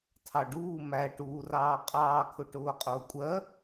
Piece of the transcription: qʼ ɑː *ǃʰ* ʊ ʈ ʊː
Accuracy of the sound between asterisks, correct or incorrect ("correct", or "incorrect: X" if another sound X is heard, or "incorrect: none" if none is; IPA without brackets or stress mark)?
incorrect: kʰ